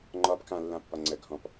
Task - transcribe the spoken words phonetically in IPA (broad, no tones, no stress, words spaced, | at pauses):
ŋ͡ǃɒb kã lːãpːɒ ŋ͡ǀə ɡʱɔ̃p